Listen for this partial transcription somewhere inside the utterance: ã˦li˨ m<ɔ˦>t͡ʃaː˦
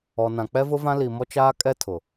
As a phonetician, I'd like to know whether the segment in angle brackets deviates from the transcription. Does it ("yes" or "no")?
no